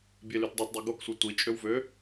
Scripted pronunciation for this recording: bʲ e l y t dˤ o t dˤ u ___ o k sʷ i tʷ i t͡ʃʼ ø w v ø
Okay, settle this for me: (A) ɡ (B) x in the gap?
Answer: A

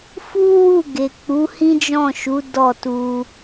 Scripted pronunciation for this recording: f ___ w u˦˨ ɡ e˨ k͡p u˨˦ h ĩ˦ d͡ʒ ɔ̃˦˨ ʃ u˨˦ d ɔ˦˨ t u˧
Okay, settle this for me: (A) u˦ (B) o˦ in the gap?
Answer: A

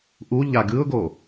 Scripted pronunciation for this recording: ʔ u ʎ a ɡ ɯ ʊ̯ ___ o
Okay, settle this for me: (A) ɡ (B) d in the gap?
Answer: A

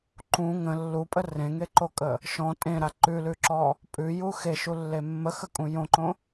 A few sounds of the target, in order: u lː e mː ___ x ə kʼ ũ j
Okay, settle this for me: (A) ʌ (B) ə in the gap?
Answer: B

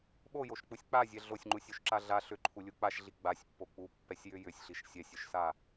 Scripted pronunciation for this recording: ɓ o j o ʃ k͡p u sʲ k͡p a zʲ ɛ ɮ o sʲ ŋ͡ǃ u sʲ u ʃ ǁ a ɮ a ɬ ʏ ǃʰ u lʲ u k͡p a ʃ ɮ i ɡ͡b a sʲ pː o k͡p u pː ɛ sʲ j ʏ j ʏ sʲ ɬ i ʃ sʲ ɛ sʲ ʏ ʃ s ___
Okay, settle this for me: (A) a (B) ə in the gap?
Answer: A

